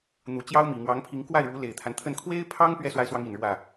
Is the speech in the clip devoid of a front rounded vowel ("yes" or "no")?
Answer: yes